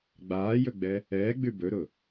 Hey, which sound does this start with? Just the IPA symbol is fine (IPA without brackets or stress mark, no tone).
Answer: ɡ͡b